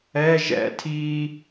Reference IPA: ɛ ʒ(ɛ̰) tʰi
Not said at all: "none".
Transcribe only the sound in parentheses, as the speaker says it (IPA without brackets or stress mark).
ɛ̰